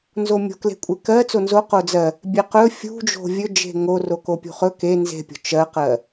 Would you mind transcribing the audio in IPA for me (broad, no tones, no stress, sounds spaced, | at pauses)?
n z o mʲ o̤ k l e̤ kʷʼ e k ɜ t͡s o n z o q o d͡z ɜ | bʲ e q ɵ fʲ ṳ d͡ʒ o̤ vʲ ɵ d͡ʒ e̤ ŋ o r o k o pʲ ṳ χ ɵ k e n z e̤ pʲ o̤ t͡ʃ ɜ q ɜ